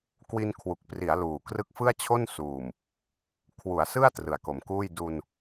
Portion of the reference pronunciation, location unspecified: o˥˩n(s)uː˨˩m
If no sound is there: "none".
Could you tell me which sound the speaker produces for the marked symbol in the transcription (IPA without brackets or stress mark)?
s